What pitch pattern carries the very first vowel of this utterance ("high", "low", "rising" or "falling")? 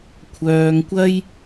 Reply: low